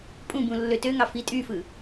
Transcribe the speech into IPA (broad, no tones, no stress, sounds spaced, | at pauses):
pʼ ũ b ũ lː ø t ø ŋ ɑ f i tʼ y f ɯ